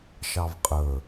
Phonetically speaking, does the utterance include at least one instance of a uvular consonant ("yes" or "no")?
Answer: yes